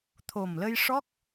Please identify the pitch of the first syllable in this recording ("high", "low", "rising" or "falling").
low